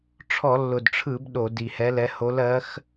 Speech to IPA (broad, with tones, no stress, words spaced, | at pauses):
ʈ͡ʂʰɔ˧˩˧lːʊ˨˩dʈ͡ʂʰɯ˧˩˧b ɗo˧˩˧di˨˩hɛ˧˥lɛ˧˥ ho˧˥lɜ˧˥x